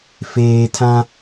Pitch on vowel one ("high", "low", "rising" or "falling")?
low